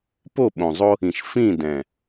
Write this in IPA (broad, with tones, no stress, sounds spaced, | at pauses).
p o˦˨ ɓ õ˨ zˤ o˦ | ĩ˨ ʃ f ĩ˦˨ d ɛ̃˨